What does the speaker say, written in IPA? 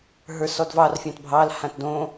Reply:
ɦ ə˞ s ɔ d v ɑ r fʲ ɑ̃ t bʱ ɑ l h ã t d õ

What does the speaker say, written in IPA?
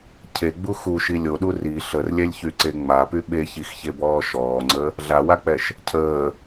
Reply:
cʰ e ɡ͡b u x u ʃ i lʲ o ɗ u r i ɬ ə r lʲ ɛ lʲ ç y ǀ e ŋ͡m a p y ɓ e ç i x ç e b ɔː ʃ ɔː ŋ͡ǀ ə | ɮ a w a k͡p ɛ ʃ | cʰ əː

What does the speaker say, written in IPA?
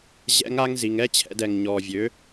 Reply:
ʑ ɛ̰˦ ŋ a˦ ŋ z i˨ ŋ ɛ˦ t͡ɕʰ ɛ̰˧ d ɛ˨ ŋ ɲ ɔː˨ vʲ ø˨˦

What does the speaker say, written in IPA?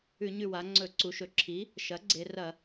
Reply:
ʉ˧˩˧ ɲ ʉ˧˩ w a˩˧ ŋ͡ǀ ɵ˧˩˧ ǀ u˩˧ ʃ ɵ˩˧ ǁʰ i˩˥ | ʃ ɐ˩˥ ɡ͡ǀ e˩˧ r ɐ˧˩˧

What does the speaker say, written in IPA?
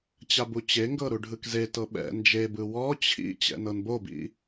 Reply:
t͡ɕ a b u t͡ɕ e ŋ ɡ ɤ ɾ u ɖʱ ɯ k z e t ɤ ɓ ɛ̰ n d͡ʒ e b ɯ w ɔ t͡ɕʰ ḭ t͡ɕ ɛ̰ n ɤ n b o b ḭ

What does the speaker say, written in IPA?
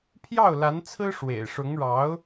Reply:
pʰ j ɑ˥˩ ʊ̯ l a˧˥ n t͡sʰ ɹ̩˥ ʂ w ḛ˨˩ ɪ̯ ʂ ʊ˧˥ ŋ ɻ ɑ˧˥ ʊ̯

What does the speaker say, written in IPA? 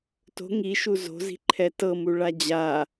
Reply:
t o̤ ŋ i ʃ u z o̤ z i̤ ǃʰ ɛ t ɤ m u ɭ a d͡ʑ a

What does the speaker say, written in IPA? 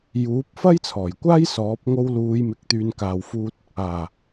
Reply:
j uː˨˥ p̚ f ɐ˥ j t͡sʰ ɔː˨˩ j kʷ aː˥ j s ɔː˨˥ p̚ ŋ o˧ w l uː˨˧ j m ɪ˨ k̚ t̪ yː˨ n k aː˨ w f uː˧ t̚ | aː˨˩

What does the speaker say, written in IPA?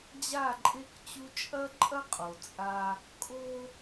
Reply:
d͡ʑ a˦˨ ǃʼ e˦ k t͡ɕ u˦ t͡ʃʼ ɐ˦ ǃʼ ɐ˦ qʼ o˨ t͡sʼ a˦ | kʼ o˦

